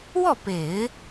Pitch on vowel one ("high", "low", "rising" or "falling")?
falling